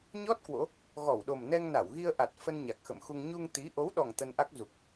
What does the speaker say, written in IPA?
ɲ ɔ˦˥ t̚ k w o̰˧˥ | ɣ ɔ˧˩ w ɗ o˨˩ m n ɛ˧ ŋ n a˧˩ w ɣ i˧ ə̯ ʔ a˨˩ t̚ f ə˧ n ɲ a˨˩ k̚ x ə̰˧˨ m x u˧ ŋ ɲ u˧ ŋ t̪ i˨˦ ʔ o˨˦ w ɗ ɔ˨˩ ŋ t̪ ə˧ n ʔ a˦˥ k̚ z u˨˩ k̚

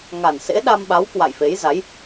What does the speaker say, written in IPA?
ŋ a˨˩ n s ḛ˧˥ ɗ a˧ m ɓ a˨˦ w k w a̰˧˨ j f e˨˦ j z a˨˦ j

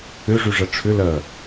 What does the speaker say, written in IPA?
ʏ ʐ y ʐ ɐ ʈ͡ʂʰ ʏ l ɐ

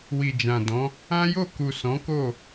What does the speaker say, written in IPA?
w i˨ d͡ʒ ã˨ d ɔ̃˨˦ | ã˦ j o˦˨ k u˨ s ɔ̃˨˦ k o˦˨

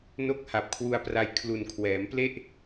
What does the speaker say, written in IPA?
n o˥˩ k̚ h a˨˩ p̚ kʰ w u˧ a̯ p r a˧ j kʰ l u˨˩ n kʰ w ɛː˩˦ m p l e˥˩ ʔ

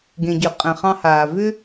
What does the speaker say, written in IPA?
ɡ ẽ˩ ɟ ʏ˩ qʼ ɛ̃˩ χ ɑ̃˧ h aː˩ v ʏ˥

